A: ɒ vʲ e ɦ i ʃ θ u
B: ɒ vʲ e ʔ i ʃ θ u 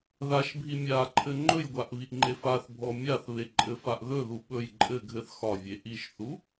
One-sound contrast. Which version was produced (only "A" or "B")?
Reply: B